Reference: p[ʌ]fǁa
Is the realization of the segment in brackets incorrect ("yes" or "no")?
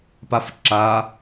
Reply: yes